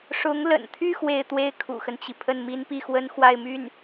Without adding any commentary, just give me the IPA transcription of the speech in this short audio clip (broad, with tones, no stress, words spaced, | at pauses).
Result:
ʂʊ˧˥ŋlə̰˨˩nt̪ʰy˥˧ xwe˥˧ɪ̯t̪we˥˩ɪ̯ kʰṵ˨˩xə˦nt͡ɕi˩ pʰə˥˩nmi˥npi˥˩xwə˥n xwa˥˧ɪ̯my˥˩n